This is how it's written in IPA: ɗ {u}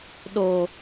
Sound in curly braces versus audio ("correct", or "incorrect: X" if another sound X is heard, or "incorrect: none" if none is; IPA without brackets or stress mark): incorrect: o